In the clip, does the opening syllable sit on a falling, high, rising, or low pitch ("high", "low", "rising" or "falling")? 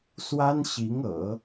high